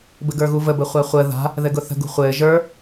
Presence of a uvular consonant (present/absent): present